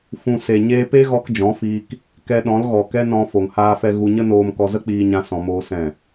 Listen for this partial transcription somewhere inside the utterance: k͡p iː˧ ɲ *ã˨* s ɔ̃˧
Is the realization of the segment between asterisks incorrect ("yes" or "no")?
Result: yes